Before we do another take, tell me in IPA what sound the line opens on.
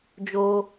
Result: d͡ʒ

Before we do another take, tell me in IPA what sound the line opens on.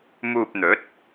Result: m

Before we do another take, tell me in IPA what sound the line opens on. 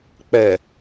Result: k͡p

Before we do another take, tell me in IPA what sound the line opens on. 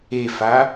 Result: e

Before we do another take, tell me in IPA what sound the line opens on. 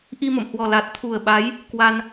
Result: ʔ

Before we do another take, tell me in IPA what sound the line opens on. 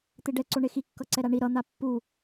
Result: t̪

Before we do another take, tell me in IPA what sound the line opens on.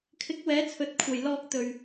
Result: kʰ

